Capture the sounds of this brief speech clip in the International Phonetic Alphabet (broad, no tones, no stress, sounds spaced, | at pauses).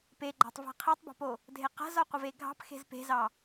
p e ɡ͡ǃ ɑ̤ tˤ v a̤ qʰ e tˤ b ɑ̤ p o | dʱ e q a̤ z ɒ qʷ ə v e ɡʱ ɑ̤ p x e̤ z p e̤ z ɑ